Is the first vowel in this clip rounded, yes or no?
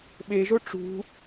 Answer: no